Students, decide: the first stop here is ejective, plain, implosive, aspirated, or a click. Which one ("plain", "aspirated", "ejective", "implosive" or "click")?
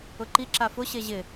click